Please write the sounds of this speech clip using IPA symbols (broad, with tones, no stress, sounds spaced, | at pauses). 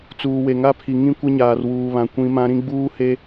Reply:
t͡s uː˨ w e˨ ŋ a˦ pʰ i˨ ŋ ĩ˦ kʷ ɪ˦ ɲ aː˨ r w uː˨ β ã˨ kʷ ĩ˨˦ m ã˦ ɾ ĩ˦ ɡ͡b uː˦ h e˦